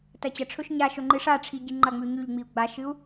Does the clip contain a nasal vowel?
no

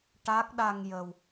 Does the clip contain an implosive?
yes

